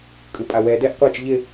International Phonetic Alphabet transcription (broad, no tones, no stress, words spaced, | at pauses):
kʼɯpʼawɛ dɛʔ qʷat͡ʃ ʎɪ